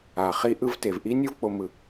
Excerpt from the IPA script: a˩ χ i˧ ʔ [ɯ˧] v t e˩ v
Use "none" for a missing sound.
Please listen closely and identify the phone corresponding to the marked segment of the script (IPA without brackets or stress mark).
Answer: ɯ˧